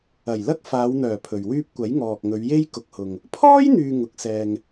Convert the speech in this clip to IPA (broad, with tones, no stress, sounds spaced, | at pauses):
ɐ˨˩ j l ɐ˥ k̚ f aː˨˧ w n̪ œː˨˩ pʰ ɵ˨ ɥ w yː˥ p̚ kʷ ɐ˨˥ j ŋ ɔː˨ k̚ ŋ ɵ˨˧ ɥ j e˥ j k ʊ˨ k̚ h ʊ˨ ŋ | pʰ ɔː˥ j n̪ yː˧ ŋ ʊ˨˥ k̚ s ɛː˧ ŋ